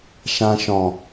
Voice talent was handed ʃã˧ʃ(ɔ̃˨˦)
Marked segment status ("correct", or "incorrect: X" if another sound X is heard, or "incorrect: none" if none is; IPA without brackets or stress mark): incorrect: ɔ̃˨